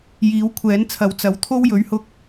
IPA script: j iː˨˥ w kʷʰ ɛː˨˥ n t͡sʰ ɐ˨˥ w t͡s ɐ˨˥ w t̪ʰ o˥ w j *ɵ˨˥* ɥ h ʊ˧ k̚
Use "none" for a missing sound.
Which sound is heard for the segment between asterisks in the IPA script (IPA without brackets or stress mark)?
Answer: ɵ˨˥